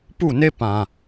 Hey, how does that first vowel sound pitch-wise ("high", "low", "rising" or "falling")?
falling